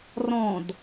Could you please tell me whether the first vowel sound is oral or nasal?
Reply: nasal